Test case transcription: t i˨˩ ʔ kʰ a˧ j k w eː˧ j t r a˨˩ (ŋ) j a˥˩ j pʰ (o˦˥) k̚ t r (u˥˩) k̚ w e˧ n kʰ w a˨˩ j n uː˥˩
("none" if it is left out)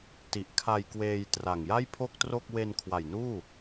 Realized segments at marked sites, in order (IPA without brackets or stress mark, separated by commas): ŋ, o˥˩, o˥˩